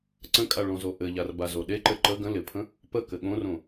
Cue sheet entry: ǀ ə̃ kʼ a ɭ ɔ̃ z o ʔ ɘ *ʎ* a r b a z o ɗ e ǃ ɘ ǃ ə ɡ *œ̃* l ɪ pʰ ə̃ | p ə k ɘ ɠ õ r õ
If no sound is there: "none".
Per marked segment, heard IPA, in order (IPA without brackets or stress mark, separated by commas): ʎ, ə̃